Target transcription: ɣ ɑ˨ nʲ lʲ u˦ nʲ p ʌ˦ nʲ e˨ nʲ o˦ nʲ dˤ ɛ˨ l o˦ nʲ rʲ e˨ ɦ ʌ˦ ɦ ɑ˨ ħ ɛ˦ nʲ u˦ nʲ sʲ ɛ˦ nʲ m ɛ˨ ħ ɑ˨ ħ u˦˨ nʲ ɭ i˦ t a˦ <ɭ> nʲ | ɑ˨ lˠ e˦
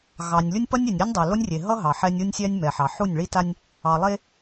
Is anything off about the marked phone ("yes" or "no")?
yes